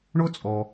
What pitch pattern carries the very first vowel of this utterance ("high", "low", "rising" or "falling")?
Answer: high